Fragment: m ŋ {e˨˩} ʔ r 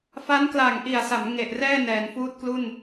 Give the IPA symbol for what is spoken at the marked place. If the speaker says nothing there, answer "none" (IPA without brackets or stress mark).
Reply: e˨˩